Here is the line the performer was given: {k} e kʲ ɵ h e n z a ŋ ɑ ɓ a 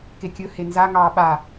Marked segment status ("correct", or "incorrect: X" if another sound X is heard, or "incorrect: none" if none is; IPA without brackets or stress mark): correct